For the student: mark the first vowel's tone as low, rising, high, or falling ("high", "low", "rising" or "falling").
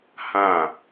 falling